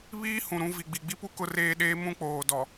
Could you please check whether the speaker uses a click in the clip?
no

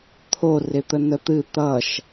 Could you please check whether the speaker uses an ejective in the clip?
no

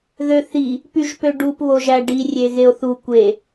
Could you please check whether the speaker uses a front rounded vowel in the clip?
yes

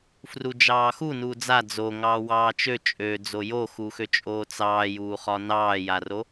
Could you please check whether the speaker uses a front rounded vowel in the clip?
yes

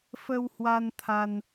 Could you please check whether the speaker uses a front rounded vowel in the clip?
no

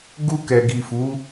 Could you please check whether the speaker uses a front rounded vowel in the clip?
no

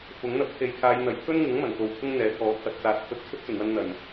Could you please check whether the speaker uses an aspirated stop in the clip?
yes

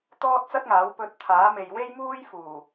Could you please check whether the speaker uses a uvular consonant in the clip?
no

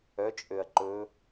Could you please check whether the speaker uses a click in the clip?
yes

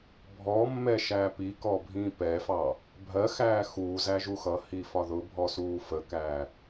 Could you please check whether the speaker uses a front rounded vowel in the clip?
no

